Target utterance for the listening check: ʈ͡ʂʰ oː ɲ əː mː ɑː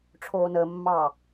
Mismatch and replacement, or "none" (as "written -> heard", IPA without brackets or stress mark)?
ɲ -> n